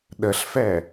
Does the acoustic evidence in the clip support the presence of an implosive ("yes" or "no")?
yes